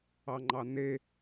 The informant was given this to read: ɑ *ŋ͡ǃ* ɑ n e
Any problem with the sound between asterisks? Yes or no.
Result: no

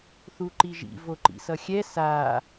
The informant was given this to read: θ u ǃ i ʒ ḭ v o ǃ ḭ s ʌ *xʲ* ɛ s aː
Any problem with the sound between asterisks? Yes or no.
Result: no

